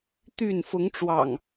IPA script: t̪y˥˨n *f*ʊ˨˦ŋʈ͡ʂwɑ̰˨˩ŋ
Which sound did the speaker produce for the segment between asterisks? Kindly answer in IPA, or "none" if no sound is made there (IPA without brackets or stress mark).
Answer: f